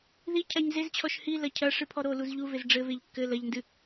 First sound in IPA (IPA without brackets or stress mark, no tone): ð